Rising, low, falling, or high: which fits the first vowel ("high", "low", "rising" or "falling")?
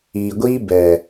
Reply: low